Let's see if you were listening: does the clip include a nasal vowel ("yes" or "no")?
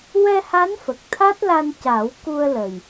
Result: no